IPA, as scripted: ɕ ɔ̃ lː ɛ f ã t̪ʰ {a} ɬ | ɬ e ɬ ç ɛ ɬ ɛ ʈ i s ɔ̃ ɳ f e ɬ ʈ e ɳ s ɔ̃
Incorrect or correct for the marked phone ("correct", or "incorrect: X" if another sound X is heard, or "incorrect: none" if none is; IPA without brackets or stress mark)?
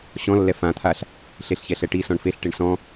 correct